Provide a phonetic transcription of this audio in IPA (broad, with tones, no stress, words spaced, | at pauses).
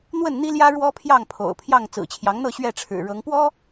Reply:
n̪wə˥˨nn̪i˦ljä˦ ɻwɔ˦ pʰjɑ˥˨ŋpʰo̰˨˩ʊ̯pʰjɑ˥˨ŋ t͡sɹ̩˨˩t͡ɕʰjɑ˨˦ŋn̪ɤ˥˨ ɕɥɛ˥˨ʈ͡ʂʰɻ̩˨˩ɻɤ˨˦ŋ pwɔ˦